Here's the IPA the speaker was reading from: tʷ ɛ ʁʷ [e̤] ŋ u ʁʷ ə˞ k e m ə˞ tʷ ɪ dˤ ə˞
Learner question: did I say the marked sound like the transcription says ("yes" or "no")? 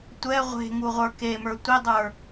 yes